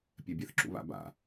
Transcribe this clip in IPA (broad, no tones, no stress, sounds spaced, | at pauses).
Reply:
pʲ ɛ bʲ ɛ θ ǁ ṵ β a̰ b a̰